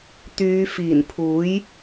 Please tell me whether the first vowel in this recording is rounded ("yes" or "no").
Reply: yes